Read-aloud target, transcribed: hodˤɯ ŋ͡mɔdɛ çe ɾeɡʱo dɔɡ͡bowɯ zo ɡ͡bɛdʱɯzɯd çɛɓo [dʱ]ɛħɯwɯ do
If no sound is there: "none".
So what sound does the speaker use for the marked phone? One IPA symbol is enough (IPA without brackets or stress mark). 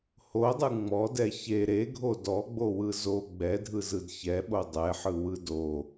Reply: dˤ